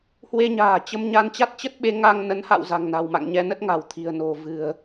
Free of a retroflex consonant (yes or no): yes